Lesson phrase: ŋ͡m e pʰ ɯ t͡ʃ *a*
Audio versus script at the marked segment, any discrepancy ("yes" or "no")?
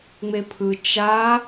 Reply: no